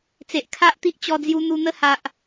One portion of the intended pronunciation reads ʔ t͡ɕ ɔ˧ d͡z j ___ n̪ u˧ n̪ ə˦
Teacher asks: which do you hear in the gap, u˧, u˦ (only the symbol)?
u˧